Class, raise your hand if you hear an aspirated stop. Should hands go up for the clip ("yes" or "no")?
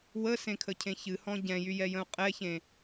yes